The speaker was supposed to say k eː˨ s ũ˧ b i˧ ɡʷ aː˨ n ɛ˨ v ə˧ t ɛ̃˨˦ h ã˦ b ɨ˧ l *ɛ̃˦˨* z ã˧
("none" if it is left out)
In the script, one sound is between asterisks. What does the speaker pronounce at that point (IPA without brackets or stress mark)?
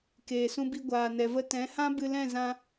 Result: ɛ̃˦˨